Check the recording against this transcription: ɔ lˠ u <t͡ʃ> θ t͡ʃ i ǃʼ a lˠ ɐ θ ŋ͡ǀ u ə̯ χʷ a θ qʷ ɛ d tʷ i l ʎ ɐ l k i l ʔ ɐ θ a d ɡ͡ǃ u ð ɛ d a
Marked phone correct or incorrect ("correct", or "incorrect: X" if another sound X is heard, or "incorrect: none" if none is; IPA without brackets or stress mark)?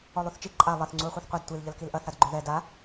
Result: incorrect: none